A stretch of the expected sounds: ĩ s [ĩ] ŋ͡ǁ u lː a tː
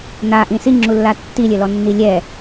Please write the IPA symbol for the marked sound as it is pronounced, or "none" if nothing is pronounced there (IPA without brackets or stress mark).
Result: i